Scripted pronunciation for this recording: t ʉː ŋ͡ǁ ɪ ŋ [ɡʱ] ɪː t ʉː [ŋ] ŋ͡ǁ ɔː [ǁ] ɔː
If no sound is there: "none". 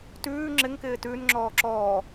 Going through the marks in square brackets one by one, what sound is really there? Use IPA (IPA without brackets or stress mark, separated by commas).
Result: k, n, ǁ